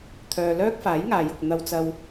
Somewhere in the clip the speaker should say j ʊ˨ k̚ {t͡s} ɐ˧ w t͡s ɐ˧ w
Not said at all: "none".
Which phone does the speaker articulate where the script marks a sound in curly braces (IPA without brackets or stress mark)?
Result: n̪